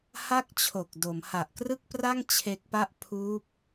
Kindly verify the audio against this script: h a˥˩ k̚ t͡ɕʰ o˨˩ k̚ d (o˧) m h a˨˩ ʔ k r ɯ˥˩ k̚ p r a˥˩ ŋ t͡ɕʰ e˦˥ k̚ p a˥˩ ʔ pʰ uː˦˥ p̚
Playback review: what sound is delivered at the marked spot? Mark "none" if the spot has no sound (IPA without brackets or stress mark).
o˩˦